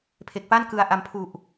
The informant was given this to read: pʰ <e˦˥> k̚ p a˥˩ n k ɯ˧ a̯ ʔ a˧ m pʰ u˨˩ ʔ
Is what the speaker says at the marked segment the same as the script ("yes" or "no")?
no